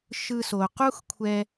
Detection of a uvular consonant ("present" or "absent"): present